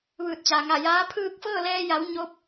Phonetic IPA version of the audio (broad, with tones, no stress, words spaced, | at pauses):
ʋɯː˧˩t̚t͡ɕa˩ŋa˧˩jaː˧˥ pʰɯː˥˨k̚ fɤː˥˨lɛː˧ja˩˧w ɲo˧˥p̚